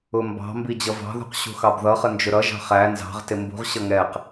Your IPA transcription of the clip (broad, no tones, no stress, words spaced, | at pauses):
ʊmbɑ̤mbi d͡ʑʌvɑ̤ðṳq ɕṳxɑbðʌχə nd͡ʒʊɾʌʒɑ̤ χæ nzɑ̤ʁtɪ mbṳʁɕʌ ŋɛq